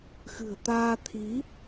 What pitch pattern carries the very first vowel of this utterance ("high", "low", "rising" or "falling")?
low